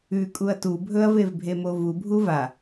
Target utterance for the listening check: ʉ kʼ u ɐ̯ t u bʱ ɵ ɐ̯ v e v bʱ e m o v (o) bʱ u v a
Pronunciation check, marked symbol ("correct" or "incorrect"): incorrect